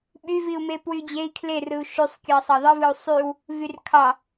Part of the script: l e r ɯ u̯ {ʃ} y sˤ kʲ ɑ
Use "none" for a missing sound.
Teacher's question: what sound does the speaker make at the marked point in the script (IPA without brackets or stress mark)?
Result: ʃ